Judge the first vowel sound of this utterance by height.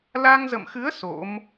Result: low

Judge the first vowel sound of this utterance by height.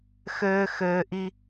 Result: mid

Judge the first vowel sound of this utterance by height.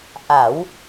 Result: low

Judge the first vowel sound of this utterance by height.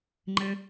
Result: mid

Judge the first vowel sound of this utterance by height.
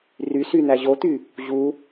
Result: high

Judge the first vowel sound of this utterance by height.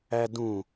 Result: low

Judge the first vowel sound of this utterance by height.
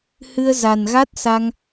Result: high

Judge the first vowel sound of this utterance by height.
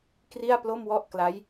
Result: high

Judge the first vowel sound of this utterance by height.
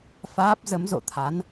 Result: low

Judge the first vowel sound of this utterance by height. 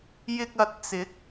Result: high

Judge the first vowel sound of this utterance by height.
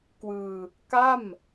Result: high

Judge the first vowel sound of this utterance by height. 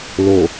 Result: mid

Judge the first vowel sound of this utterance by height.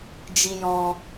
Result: high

